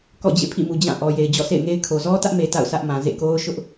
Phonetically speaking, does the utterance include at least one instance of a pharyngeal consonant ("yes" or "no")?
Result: no